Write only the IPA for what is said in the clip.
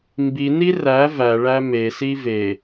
mbini ræ væɭæ mesi ve

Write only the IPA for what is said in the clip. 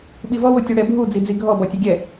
ɓivɔwotʲo ɽɛbʱu d͡zid͡ziɡʱɔ bɔtʲɐɡʲɛ

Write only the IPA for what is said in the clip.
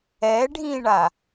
ɛ ɖʱĩɳa

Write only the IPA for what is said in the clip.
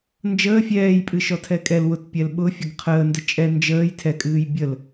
nd͡ʒəː fʲɛːjpʼɨʃɔtʰɛ kʼɛl wʊtpʲɛl ɓʊfʲəɡ qʰəːndə t͡ʃʼɛ nd͡ʒəːj tʰɛkʼɨːj bʲəl

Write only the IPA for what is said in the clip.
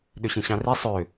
ɗøɕĩɕɑ̃ri sˤø

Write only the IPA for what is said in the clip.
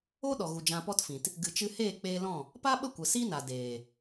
o˦ ɗɔ˨ɣu˨ d͡ʒã˧pɔ˦tfĩ˨t | ɡɨ˨t͡ʃɨ˧heː˦˨ k͡peː˧lɔ̃˦˨ | pa˦ɓə˦˨ kʷə˨si˦na˨ deː˨

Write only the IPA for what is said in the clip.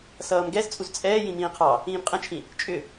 sʌːmɡɛzt͡sʼuz t͡sʼɛː jĩmĩːqʰɑ | ĩːmqʼə̃t͡ʃʰĩ | t͡ʃʼʏ

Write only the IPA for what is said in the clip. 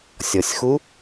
sʲɔsʲxu

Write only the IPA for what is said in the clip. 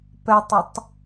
pɛtˤətˤ

